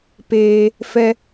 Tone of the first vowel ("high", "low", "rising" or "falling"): high